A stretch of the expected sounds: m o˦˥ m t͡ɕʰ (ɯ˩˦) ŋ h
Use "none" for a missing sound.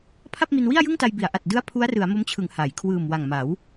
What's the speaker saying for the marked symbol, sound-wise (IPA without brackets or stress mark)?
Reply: ɯ˩˦